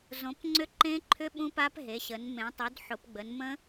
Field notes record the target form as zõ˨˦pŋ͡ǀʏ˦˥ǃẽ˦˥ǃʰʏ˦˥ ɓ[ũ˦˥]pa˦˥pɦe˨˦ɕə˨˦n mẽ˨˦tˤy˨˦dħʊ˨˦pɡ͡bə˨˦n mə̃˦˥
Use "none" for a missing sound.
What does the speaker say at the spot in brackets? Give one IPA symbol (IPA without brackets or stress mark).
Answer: ũ˦˥